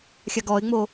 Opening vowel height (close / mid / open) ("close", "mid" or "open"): open